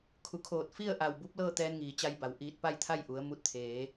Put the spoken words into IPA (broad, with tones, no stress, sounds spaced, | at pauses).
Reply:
kʰ u˩˧ kʰ oː˧˩ t̚ f i˥˨ ə̯ ʔ a˧˩ w b u˧˥ p̚ l ɤː˥˨ t̪ ɛː˧ n ŋ iː˩ t͡ɕ a˧ j b a˩ w ʔ iː˧˩ t̚ p a˥˨ j t̪ʰ a˥˨ j ʔ u˩˧ ə̯ m u˧ t̚ t̪ʰ eː˩˧